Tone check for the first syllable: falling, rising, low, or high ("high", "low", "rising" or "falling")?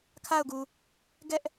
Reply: falling